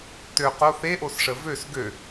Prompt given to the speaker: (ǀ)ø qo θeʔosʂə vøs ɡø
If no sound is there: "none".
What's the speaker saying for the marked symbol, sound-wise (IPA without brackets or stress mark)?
t